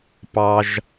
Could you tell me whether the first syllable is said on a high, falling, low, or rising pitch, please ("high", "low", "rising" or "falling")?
low